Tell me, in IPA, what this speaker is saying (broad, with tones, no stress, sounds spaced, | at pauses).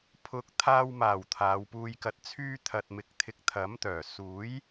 pʰ ʊ˨˥ k̚ t̪ʰ aː˧ w m aː˨˩ w t̪ʰ aː˨˧ w p uː˧ j k ɐ˧ t̚ t͡sʰ yː˥ t̪ʰ ɐ˨ t̚ m ɪ˨ k̚ t̪ʰ ɪ˨˥ k̚ t̪ʰ ɐ˨˥ m t̪ œː˨˩ s uː˨˥ j